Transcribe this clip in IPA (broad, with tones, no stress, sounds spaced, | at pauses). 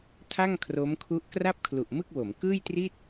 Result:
tʰ a˥˩ ŋ kʰ r o˦˥ m kʰ u˦˥ ʔ k r a˥˩ p̚ kʰ l u˨˩ ʔ m ɯ˥˩ k̚ w o˩˦ m k ɯː˥˩ j t r i˥˩ t̚